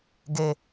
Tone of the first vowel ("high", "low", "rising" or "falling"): high